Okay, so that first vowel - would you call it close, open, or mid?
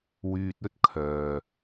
close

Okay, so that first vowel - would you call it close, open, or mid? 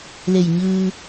mid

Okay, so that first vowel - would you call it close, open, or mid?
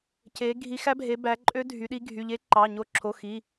mid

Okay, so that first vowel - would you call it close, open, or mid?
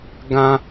open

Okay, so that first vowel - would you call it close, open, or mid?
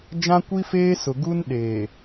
open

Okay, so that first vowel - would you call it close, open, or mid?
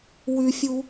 close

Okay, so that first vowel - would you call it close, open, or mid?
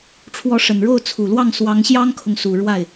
mid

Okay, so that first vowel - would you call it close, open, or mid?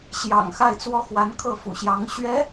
open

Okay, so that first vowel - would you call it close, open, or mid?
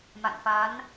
open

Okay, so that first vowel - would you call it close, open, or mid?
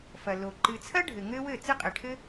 open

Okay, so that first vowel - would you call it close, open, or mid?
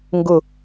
close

